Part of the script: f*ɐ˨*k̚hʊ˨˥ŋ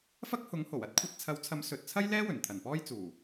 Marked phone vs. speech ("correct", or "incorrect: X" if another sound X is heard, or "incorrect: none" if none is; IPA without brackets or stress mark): incorrect: ɐ˥